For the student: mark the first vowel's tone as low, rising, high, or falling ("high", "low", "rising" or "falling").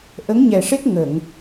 rising